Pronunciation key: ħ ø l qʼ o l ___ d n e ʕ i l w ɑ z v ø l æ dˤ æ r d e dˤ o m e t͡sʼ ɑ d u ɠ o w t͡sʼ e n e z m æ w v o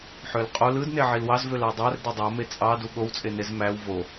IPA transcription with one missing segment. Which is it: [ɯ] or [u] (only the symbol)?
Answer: ɯ